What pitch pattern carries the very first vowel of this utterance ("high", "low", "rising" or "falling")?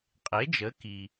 rising